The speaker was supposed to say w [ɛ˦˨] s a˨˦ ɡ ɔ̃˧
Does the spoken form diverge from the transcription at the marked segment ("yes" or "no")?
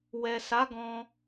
yes